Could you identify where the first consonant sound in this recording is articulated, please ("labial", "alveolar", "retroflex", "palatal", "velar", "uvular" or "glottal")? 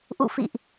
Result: glottal